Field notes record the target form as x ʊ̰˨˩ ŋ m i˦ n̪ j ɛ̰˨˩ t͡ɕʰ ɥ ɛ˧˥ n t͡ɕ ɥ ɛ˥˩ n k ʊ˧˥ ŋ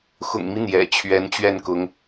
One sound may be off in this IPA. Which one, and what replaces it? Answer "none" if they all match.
none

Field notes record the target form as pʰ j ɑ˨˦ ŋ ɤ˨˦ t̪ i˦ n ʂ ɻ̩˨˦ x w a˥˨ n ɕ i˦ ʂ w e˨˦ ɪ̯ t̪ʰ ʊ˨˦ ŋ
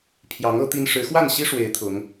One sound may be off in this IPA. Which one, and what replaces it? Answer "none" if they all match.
none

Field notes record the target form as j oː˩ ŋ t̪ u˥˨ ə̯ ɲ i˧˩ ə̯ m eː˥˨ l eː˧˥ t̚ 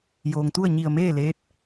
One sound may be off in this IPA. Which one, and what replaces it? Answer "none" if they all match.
none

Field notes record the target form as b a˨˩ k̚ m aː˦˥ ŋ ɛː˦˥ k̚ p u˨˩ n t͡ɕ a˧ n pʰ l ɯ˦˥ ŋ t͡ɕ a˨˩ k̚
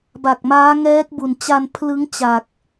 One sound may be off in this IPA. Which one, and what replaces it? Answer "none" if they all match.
p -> b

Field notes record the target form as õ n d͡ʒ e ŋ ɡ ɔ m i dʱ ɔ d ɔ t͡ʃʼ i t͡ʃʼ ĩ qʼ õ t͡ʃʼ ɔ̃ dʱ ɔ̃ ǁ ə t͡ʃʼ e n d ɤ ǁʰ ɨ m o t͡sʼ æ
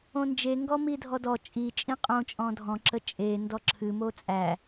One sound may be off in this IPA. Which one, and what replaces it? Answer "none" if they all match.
ɤ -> ɔ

